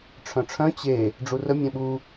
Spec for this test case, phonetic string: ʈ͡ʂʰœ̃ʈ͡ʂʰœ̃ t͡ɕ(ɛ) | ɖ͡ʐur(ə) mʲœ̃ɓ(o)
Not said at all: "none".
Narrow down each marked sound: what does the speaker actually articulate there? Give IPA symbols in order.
e, ə, u

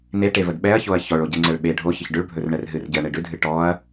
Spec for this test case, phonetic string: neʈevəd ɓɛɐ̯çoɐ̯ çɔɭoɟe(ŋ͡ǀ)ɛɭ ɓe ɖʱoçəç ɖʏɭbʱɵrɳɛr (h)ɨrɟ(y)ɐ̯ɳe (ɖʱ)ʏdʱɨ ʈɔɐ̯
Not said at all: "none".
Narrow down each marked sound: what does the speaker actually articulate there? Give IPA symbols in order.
ŋ͡ǀ, ɦ, ɨ, ɖ

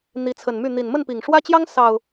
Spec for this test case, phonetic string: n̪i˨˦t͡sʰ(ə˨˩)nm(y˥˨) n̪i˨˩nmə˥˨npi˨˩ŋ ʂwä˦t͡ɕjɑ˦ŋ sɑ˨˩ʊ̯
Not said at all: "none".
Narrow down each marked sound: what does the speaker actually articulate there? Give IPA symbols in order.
ə˨˩, y˥˨

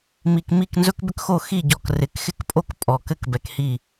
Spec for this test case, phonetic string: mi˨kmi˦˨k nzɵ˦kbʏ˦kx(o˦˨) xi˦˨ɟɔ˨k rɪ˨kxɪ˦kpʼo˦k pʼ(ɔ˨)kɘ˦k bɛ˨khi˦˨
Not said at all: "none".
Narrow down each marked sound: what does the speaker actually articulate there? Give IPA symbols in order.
o˦˨, ɔ˨

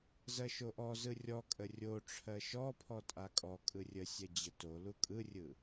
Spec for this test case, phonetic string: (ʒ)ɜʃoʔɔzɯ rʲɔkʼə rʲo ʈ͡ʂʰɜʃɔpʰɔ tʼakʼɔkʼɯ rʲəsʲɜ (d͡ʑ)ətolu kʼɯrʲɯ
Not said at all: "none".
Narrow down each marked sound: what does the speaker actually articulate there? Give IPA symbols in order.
z, d͡ʑ

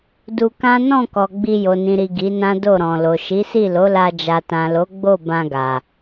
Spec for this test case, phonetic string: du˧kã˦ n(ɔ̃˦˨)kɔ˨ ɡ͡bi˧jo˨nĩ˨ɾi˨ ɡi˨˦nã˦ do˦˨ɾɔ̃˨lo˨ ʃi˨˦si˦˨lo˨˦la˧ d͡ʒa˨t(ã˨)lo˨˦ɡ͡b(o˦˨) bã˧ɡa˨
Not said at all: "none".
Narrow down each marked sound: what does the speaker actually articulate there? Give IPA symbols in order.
ɔ̃˦˨, ã˨, o˦˨

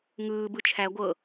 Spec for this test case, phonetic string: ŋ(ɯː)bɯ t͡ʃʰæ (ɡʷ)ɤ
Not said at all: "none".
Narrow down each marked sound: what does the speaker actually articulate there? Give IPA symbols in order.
ɯː, ɡʷ

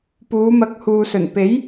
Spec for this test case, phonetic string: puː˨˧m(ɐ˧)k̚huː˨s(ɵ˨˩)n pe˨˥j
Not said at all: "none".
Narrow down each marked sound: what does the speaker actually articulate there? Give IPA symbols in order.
ɐ˨˥, ɵ˨˩

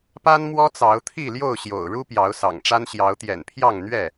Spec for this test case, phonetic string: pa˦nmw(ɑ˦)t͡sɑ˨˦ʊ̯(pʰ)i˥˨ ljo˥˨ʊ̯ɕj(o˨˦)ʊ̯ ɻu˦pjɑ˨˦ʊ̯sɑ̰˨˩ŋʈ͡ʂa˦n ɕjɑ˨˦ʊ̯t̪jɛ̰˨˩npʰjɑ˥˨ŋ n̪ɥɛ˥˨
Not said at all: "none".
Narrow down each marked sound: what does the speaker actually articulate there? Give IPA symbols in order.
ɔ˦, t̪ʰ, o̰˨˩

